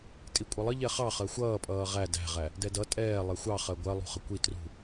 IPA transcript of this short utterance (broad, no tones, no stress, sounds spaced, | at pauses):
tʼ i kʷʼ ʌ lˠ ə ʎ ɛ χ ɑ χ ɜ xʷ ʌː pʼ ʌː ʁ æ d æ̤ ʁ æ | d ɛ d ʌ tʼ ɛː lˠ ɛ xʷ ɑ χ ɜ ɡʷ ɜ lˠ ṳ χ ə kʷ i t r ṳ